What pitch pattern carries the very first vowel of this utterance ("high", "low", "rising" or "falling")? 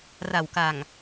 low